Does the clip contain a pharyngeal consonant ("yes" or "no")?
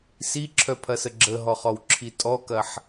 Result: yes